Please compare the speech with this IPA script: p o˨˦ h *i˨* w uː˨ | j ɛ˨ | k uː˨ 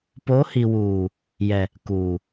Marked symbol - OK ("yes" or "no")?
yes